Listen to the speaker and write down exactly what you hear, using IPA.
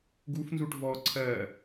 ɡufnzuʈ vɔ ǀʰɜ

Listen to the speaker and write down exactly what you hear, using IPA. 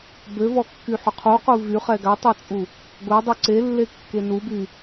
bøvɔkːyħø qʰuqu vyχɛ ɡatˤot͡sʼu | ɡʷɛdˤu ǀelːekːe nuby

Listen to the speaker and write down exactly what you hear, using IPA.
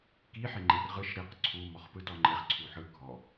ki ħeŋ͡ǃerʁɯʃ ɾiq ǀʰu mɔχpɯtɔŋ͡ǃeχ ǀʰuħɯ ɡʱɔ

